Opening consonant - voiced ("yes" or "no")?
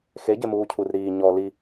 no